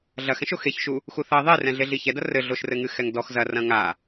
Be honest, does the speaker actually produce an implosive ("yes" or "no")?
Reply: no